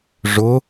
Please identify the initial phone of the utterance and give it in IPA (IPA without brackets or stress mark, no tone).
ʐ